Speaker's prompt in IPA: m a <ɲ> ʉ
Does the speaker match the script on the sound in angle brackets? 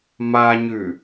yes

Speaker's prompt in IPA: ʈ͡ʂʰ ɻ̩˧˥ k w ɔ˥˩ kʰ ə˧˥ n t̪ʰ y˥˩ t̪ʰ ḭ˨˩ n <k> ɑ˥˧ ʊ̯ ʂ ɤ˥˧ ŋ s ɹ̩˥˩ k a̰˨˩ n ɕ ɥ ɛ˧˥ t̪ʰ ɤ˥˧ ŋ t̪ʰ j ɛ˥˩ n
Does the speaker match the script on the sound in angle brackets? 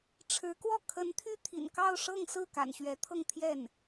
yes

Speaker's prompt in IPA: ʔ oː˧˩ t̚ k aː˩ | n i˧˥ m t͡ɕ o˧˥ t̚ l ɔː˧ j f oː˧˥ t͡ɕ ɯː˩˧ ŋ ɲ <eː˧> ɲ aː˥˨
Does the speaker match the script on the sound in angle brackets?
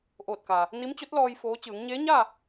no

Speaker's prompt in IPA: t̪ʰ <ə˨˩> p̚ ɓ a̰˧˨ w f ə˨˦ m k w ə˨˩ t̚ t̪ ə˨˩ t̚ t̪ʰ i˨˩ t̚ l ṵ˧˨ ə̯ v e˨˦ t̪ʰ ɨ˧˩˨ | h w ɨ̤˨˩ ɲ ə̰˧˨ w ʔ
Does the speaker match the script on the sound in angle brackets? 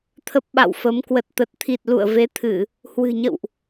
no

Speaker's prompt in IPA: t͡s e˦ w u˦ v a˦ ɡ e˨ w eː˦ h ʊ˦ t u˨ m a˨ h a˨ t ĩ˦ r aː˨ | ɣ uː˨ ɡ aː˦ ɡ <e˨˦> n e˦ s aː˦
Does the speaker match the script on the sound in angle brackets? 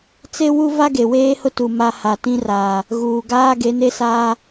yes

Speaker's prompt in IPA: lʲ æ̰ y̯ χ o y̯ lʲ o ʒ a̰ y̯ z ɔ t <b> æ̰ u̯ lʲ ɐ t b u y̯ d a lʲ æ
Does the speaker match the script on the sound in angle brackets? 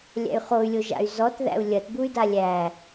no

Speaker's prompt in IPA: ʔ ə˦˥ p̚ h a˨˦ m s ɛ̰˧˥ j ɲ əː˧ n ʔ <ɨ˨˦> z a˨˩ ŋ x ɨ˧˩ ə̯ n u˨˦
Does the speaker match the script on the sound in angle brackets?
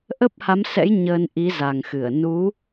no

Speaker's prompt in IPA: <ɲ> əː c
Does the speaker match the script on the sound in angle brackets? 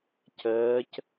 no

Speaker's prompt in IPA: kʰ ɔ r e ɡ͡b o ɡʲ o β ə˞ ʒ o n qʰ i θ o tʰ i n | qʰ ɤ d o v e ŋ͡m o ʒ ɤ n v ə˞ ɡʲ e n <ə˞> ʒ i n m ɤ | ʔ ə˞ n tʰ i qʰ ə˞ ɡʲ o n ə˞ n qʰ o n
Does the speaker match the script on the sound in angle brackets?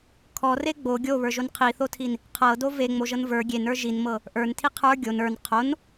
yes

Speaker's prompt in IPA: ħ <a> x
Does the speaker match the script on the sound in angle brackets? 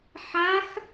yes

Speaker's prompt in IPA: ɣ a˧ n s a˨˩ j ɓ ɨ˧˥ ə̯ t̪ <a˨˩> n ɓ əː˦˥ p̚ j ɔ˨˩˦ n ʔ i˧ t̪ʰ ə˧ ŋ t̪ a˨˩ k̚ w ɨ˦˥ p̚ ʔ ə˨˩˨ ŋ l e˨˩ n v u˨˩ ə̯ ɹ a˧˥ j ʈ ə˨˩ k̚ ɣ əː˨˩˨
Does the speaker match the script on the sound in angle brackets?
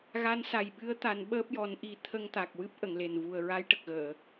no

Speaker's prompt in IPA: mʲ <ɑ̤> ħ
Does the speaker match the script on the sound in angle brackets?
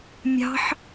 yes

